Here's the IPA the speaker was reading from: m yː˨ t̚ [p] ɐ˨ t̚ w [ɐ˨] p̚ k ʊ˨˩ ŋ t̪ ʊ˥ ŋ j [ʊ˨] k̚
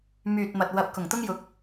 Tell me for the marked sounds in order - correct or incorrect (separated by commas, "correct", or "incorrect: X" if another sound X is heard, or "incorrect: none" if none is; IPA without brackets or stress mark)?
incorrect: m, correct, incorrect: ʊ˨˥